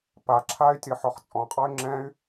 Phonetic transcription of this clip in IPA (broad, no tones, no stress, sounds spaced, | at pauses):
p a ǁʰ a y̯ tʲ ɤ ħ ɔ χ t͡sʼ ɔ̃ qʼ ɔ y̯ ŋ͡ǁ ɛ̃ y̯